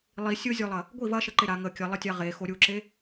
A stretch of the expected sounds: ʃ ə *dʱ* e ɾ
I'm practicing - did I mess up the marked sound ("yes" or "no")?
yes